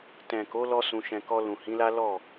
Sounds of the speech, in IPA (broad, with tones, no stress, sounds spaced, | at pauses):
t ɛ̃˨ k o˨˦ l ɔ˦ s ũ˧ ʃ ɛ̃˧ k ɔ˧ l ũ˨ h ĩ˨˦ l a˦ l ɔ˦˨